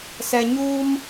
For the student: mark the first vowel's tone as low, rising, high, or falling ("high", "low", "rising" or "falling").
low